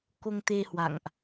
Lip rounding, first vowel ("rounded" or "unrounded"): rounded